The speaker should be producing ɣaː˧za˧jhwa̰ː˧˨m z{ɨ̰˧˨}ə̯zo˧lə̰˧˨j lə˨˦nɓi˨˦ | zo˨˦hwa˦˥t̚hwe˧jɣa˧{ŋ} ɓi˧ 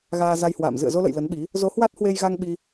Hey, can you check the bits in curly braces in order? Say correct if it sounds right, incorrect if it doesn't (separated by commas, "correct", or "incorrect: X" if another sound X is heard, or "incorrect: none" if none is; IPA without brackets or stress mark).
correct, correct